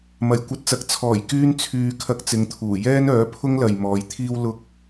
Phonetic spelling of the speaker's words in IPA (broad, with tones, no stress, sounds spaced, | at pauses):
m ɐ˨˩ j kʷ ɐ˧ t̚ t͡s ɐ˨˥ k̚ t͡sʰ ɔː˨˩ j k yː˧ n t͡sʰ yː˧ kʰ ɐ˧ k̚ t͡s ɪ˨˧ ŋ t̪ʰ uː˨˩ j ɛː˥ n œː˨˥ pʰ ʊ˥ ŋ l ɐ˨ j m ɔː˨˧ j t̪ʰ iː˥ w l ʊ˥ k̚